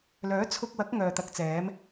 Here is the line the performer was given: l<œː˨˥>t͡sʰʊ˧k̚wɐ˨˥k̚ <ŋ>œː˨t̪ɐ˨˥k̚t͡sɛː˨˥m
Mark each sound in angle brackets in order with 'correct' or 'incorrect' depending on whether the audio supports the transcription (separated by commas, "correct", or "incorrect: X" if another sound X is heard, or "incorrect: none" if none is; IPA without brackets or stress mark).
correct, correct